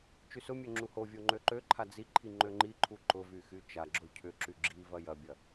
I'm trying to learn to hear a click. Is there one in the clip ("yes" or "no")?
yes